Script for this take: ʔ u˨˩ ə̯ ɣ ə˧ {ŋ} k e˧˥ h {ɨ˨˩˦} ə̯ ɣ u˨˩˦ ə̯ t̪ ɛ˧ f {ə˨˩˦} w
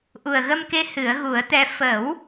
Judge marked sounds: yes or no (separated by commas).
no, yes, yes